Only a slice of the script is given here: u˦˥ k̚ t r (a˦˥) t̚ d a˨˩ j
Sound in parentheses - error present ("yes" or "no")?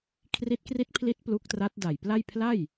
no